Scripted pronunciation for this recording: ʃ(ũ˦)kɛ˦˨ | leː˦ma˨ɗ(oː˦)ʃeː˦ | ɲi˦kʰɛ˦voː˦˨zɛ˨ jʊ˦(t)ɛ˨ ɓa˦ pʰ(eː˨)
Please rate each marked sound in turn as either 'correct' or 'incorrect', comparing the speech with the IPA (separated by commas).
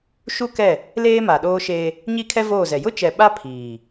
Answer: incorrect, correct, incorrect, incorrect